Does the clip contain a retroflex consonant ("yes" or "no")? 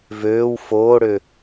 yes